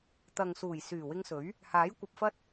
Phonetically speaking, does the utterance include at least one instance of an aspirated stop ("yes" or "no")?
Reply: no